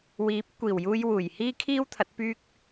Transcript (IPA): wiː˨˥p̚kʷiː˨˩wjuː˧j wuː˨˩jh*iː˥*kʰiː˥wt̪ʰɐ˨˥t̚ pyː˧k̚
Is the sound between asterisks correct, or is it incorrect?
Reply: correct